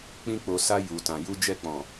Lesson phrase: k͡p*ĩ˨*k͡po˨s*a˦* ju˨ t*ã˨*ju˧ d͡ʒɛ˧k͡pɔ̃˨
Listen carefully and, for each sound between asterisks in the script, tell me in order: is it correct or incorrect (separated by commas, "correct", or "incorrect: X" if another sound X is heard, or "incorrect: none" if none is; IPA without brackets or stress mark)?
incorrect: ĩ˧, incorrect: a˧, correct